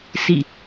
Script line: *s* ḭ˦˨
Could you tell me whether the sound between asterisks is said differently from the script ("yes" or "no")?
no